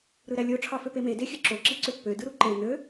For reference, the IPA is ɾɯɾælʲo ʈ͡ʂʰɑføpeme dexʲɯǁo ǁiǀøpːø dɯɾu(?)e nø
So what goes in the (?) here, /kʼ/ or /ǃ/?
ǃ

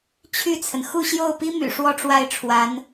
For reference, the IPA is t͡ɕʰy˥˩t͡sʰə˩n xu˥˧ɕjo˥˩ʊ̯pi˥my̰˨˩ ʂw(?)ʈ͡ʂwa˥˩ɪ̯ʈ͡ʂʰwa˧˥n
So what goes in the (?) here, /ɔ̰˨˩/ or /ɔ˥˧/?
ɔ˥˧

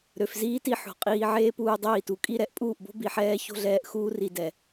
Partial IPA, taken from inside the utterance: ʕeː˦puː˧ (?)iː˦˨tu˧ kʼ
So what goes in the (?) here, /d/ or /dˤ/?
dˤ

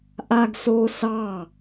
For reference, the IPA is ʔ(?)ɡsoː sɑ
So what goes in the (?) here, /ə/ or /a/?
a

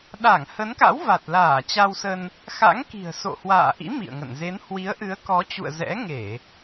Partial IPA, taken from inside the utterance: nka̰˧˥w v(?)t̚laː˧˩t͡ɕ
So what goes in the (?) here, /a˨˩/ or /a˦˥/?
a˨˩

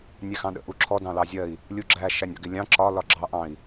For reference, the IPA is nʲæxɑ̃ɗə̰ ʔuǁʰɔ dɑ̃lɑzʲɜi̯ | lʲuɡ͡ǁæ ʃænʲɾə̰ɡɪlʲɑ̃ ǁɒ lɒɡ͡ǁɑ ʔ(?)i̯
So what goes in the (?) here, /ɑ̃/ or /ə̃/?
ɑ̃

